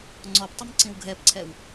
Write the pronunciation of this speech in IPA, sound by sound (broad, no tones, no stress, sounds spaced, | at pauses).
ŋ͡ǀ ɔ p tˤ ə m ǀ ĩ w ɡʱ ɛ p ǀʰ ɛ w